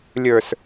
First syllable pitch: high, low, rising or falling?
low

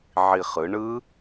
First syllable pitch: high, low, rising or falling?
low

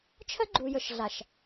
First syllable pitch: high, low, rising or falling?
high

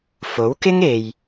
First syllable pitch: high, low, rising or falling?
rising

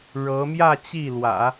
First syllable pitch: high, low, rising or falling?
rising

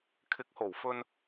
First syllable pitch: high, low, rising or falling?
rising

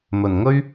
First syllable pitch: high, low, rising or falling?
low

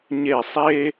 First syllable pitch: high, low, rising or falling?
falling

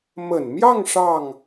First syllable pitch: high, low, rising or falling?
low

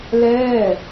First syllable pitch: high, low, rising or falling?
falling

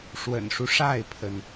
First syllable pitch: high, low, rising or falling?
low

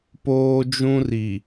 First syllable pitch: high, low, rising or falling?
high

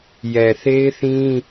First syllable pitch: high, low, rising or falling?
low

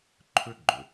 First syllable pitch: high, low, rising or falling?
high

